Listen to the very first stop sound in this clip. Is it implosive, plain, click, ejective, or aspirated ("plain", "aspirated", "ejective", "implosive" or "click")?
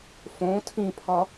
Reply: aspirated